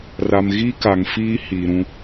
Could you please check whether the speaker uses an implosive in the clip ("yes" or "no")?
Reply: no